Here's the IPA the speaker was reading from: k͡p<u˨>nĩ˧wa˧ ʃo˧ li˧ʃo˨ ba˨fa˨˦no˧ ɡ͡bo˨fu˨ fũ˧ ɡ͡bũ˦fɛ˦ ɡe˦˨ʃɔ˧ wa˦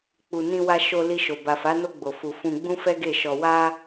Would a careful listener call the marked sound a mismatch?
no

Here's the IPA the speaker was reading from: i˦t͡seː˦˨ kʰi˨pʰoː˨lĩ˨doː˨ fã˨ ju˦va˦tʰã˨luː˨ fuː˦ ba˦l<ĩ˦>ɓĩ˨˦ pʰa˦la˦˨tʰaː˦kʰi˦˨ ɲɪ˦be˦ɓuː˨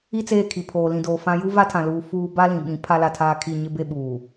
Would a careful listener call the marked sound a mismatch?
yes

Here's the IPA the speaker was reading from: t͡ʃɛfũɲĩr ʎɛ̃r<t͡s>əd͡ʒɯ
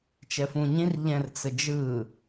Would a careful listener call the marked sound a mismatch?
no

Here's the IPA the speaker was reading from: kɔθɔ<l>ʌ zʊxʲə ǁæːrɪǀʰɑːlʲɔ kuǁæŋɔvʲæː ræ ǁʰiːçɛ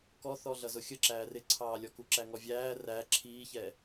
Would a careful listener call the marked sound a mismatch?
yes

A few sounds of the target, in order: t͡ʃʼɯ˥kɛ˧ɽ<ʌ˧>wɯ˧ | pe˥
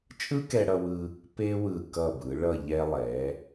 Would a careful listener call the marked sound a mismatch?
no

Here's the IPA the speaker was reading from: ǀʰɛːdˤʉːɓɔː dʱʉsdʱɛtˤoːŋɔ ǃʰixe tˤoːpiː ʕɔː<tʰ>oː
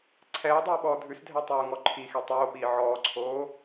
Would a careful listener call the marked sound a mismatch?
yes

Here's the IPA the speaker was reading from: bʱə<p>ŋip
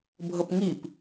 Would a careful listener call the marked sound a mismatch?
no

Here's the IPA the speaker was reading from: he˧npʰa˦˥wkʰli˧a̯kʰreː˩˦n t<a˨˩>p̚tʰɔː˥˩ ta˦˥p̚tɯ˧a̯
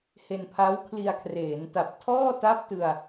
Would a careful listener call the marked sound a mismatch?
no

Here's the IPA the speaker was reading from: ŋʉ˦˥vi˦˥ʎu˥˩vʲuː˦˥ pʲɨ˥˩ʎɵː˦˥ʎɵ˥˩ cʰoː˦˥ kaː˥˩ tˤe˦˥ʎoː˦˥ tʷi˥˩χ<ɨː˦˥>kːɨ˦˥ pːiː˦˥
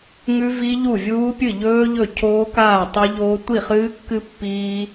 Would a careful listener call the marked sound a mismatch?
no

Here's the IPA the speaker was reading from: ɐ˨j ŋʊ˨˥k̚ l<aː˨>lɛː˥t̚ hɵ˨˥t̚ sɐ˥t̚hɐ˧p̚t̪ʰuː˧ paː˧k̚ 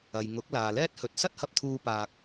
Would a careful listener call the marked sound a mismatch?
no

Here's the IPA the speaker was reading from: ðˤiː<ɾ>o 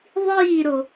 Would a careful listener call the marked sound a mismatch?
no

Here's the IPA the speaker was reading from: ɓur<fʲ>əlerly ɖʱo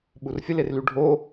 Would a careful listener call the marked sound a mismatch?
no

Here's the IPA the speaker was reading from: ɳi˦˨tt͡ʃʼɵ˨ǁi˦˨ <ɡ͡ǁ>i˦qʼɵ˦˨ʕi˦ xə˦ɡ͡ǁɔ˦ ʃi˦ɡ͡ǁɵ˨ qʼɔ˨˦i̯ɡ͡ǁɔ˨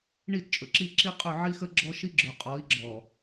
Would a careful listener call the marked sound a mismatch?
yes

